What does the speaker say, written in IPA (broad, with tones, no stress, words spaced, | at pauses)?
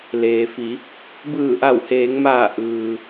leː˩fi˩˧ | bɯː˧˩ʔa˧˩wheː˩˧ŋmaː˧˩ ʔɯː˩